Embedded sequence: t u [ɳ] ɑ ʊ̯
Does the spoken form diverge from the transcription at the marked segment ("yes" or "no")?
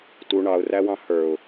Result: no